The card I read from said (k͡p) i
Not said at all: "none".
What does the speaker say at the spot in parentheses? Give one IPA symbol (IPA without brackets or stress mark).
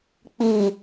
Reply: k͡p